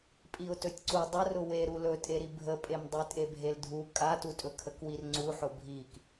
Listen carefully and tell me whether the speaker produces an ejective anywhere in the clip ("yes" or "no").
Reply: yes